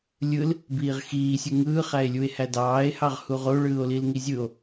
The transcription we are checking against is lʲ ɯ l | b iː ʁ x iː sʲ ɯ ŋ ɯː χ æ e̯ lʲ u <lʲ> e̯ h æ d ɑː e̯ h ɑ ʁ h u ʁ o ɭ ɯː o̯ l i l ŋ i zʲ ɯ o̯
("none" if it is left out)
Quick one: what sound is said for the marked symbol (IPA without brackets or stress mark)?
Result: none